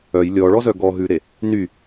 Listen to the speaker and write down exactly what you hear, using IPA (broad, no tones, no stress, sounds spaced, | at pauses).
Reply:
œ j lʲ ɔ ɭ ɔ z œ ɡ ɔ ɦ ʉ ɾ e | n y